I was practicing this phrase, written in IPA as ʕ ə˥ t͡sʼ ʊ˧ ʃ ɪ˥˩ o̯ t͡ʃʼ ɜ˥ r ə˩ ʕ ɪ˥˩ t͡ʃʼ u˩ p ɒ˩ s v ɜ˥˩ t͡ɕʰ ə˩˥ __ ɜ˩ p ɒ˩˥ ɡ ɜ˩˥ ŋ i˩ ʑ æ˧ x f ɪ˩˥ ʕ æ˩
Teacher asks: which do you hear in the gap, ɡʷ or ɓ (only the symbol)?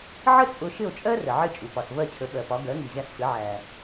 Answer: ɓ